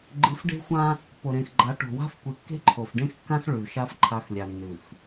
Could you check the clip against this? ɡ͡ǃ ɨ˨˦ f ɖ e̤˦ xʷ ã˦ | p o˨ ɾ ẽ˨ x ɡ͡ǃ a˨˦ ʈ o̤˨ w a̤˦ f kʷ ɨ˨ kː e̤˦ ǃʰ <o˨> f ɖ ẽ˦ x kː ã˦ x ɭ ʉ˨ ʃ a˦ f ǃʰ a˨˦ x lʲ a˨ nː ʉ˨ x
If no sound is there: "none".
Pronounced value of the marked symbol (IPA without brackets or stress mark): o˨